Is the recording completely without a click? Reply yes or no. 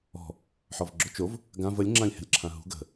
no